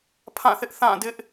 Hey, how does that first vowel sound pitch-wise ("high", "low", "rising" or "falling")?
falling